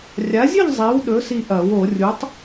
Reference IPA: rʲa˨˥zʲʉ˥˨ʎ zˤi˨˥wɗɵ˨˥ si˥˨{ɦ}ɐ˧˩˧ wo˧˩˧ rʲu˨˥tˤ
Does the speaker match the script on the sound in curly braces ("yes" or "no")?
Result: no